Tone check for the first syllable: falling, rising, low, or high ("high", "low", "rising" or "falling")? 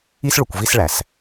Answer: high